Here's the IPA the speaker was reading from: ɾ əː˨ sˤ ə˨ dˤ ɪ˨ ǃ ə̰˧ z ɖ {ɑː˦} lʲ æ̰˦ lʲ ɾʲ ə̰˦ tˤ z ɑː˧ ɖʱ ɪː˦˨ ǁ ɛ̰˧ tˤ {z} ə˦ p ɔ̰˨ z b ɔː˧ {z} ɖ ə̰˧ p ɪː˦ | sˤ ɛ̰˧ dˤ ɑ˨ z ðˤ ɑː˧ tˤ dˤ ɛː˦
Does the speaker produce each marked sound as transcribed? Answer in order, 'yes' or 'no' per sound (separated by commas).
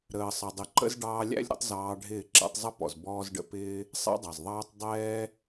no, no, yes